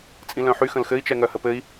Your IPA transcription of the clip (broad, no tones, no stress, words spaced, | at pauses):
t͡sʼĩlœ̃ħy xə̃lxɘi̯t͡ʃɛ ŋœhəpɘi̯